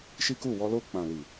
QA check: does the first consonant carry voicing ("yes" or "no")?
no